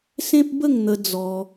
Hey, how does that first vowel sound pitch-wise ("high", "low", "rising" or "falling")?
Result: high